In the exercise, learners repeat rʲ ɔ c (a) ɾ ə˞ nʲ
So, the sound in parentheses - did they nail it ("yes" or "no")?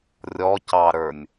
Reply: no